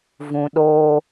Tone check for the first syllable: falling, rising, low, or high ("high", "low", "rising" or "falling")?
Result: low